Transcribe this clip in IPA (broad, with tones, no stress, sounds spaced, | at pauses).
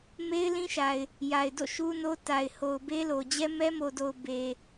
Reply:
m e˦ ɪ̯ l ĩ˦ ʃ a˨ ɪ̯ | j a˨ ɪ̯ d o̰˦˨ ʃ u˦ n o˦ t a˨ ɪ̯ h o˨ ʊ̯ b e˦ l o˨ d͡ʑ ɛ˦ m ɛ˦ m o˨ d o˨ ʊ̯ b e˨